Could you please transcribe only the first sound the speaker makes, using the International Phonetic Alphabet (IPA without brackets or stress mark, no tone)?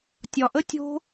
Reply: tʲ